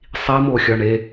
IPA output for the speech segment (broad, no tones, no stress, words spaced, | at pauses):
sˤimoxʲɒ ɳe